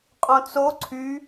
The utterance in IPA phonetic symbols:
qʼ õ t͡s o ǀʰ y

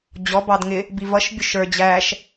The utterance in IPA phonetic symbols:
d͡ʑ ɔ b ɑ d ŋ ɪ | b i v ʌ ʃ bʲ ʊ ʃ ə˞ d͡ʑ æ ʃ

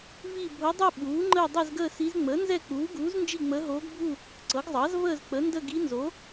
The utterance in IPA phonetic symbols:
v i˥˧ bʱ o˧˥ dˤ u˥˧ ɓ uː˩˥ ŋ͡ǃ əː˥˧ dˤ ɛ˥˧ z ɡ əː˥˧ s i˧˥ z ŋ͡m əː˩˥ n z ɛ˥˧ k͡p uː˩˥ ɡ uː˩˥ z n d͡ʒ i˥˧ ŋ͡m əː˧˥ ɦ oː˧˥ ɡ bʱ u˥˧ | ǀ ɤ˩˥ ɡ zˤ ɑ˩˥ z v əː˥˧ z k͡p ə˩˥ n d ə˥˧ ɡ i˧˥ n z o˩˥

